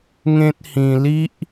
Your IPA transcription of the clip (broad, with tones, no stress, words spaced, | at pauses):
ŋẽ˦t̚hĩ˧ li˦ʔ